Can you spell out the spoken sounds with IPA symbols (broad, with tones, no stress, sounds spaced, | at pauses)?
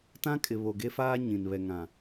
t ã˦ kʼ ɪ˨ β o˨ ɡ e˦ f aː˦ ɲ ĩ˨ n β ɛ˨ ŋ ã˨